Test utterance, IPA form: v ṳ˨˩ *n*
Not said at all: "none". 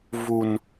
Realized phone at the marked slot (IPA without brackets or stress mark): n